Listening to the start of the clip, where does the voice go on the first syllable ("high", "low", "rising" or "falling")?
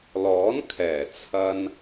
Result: rising